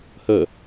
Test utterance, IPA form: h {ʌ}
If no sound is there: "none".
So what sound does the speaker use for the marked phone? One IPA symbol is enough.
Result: ə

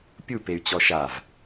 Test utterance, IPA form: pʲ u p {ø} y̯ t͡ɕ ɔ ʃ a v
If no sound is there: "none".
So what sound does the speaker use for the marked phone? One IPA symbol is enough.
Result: e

